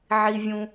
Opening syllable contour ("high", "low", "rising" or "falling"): low